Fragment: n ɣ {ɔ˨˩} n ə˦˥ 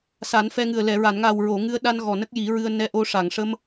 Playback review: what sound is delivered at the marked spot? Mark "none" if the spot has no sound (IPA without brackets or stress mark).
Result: ɔ˨˩